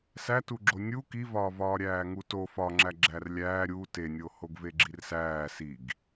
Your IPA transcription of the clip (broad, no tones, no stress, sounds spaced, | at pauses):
s æ t u ɡ͡ǁ o nʲ u k i v ɒː v ɒː ɾʲ æː ŋ u t o f ɒ ŋ͡ǁ æ ɡ͡ǁ æ r lʲ æː ɾʲ u t e nʲ o h o ɡ v e ɡ͡ǁ i r s æː s i ɡ